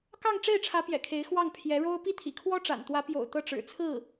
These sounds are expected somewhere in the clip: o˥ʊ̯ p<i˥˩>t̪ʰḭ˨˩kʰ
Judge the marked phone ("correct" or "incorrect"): correct